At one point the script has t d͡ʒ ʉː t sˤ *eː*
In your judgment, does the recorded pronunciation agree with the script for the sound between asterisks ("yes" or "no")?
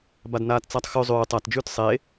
yes